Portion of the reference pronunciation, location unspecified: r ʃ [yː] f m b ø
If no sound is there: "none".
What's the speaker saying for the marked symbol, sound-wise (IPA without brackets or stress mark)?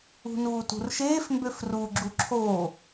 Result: eː